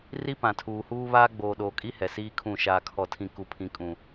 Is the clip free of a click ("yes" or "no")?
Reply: yes